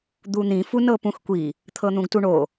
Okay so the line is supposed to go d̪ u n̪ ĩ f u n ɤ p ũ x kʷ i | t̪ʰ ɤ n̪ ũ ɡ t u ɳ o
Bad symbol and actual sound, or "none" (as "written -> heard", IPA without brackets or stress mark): none